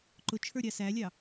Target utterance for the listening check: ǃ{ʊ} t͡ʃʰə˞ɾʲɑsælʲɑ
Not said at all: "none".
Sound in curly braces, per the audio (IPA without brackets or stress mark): ʊ